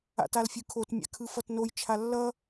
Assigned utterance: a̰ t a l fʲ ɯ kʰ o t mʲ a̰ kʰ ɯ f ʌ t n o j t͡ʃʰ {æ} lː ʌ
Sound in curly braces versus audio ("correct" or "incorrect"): incorrect